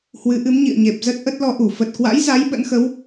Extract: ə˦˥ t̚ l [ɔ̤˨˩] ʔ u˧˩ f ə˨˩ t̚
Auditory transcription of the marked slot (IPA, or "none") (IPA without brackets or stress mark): ɔ˧